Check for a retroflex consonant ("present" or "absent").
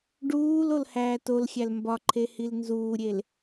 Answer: present